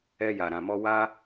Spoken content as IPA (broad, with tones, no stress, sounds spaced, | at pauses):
ɛ˦ j a˧ ɾ ã˧ m ɔ˦ w a˦